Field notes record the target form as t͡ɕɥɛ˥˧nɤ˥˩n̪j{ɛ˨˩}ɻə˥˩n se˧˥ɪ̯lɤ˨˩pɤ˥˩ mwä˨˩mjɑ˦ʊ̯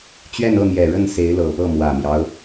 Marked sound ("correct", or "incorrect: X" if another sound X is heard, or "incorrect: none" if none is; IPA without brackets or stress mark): correct